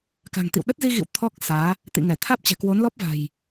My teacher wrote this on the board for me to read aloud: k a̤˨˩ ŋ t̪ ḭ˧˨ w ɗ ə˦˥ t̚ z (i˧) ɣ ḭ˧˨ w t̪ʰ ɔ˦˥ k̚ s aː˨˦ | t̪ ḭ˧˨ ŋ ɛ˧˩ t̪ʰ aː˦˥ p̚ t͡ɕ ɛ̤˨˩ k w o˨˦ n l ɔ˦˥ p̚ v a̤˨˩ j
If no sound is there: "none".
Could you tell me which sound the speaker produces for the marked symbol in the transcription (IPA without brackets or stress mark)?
i˧